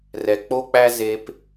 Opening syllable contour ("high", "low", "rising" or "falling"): low